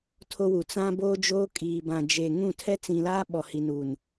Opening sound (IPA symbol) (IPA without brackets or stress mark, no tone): tʰ